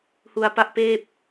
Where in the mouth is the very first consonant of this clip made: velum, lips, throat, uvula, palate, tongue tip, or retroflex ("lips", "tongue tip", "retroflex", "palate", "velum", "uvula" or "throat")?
throat